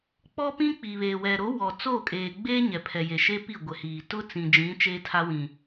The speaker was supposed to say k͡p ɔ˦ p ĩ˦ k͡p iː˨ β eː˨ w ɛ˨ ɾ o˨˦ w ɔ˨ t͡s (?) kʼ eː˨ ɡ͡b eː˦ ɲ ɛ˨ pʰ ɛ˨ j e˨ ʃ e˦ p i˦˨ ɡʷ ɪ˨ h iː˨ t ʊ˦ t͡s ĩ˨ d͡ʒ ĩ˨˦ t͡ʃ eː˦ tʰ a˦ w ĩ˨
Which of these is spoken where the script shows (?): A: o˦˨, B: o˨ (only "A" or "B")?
A